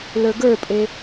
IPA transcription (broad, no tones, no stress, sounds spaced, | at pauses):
l ə˞ ɡ ə˞ pʼ e